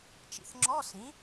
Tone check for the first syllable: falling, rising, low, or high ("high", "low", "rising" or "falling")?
low